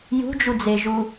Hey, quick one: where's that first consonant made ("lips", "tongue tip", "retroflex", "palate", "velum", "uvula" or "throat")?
palate